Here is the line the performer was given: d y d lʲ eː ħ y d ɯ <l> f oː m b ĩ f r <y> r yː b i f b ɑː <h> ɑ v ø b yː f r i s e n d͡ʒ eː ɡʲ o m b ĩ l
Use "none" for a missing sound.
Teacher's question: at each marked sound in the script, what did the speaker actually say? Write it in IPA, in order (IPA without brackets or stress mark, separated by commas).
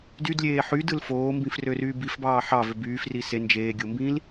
l, ø, ħ